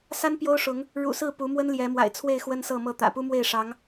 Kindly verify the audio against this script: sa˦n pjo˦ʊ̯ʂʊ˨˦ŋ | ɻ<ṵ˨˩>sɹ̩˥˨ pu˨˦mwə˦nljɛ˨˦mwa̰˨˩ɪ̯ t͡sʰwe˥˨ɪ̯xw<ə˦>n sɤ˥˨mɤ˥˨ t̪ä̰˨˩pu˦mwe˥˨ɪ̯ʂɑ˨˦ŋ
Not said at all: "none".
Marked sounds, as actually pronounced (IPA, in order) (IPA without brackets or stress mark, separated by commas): ṵ˨˩, ə˦